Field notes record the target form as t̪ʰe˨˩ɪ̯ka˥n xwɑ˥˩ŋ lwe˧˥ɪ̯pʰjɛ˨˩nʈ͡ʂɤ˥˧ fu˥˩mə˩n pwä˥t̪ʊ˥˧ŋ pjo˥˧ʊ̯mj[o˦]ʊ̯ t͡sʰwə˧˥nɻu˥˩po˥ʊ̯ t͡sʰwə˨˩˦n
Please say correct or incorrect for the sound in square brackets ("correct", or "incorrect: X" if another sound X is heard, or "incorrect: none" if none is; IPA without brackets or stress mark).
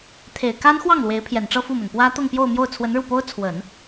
incorrect: o˥˩